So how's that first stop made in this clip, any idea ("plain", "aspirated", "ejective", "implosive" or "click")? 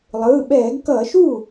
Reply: implosive